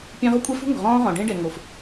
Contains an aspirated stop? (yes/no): no